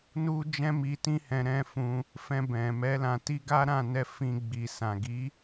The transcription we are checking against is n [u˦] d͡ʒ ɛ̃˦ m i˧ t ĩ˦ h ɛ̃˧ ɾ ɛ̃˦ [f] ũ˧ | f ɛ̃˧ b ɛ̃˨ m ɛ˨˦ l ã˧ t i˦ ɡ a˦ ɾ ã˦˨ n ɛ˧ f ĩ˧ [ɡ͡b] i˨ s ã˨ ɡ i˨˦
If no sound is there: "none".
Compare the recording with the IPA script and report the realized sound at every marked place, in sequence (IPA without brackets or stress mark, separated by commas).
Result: u˦, f, ɡ͡b